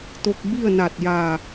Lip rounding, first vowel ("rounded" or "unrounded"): rounded